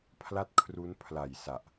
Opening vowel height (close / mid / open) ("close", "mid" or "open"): open